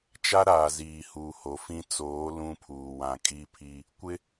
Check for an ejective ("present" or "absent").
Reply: present